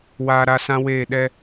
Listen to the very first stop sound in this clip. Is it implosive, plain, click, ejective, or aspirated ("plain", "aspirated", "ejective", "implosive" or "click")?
implosive